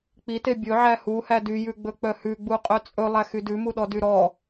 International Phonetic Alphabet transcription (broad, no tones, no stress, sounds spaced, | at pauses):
k͡p i t e bʲ ɵ ʕ æ h u h æ d y j ʉ ɡ͡b ɵ k͡p œ h ʉ ɡ͡b u qʼ œ t͡sʼ ɵ lˠ æ x y d ʉ m u ɗ ɔ d y ɾ ɔ